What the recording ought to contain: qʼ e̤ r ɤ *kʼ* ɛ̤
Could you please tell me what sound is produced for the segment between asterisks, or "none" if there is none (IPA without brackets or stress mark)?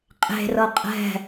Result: qʼ